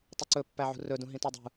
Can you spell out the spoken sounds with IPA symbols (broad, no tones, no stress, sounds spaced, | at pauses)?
tˤ ʉ ǀ ɵ pː æ ʕ ṳ r ɵ d ũ ɦ ĩ t ɔ dˤ ṳ